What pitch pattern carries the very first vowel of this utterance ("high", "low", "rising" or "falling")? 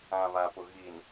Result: low